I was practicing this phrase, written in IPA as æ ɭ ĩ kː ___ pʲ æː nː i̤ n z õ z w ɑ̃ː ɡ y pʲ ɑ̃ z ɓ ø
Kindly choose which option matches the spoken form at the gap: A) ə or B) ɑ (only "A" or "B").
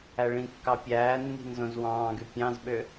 B